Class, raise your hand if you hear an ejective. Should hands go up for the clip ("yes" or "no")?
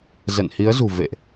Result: no